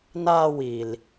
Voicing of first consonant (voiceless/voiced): voiced